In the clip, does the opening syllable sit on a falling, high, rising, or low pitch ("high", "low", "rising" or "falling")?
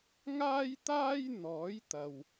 high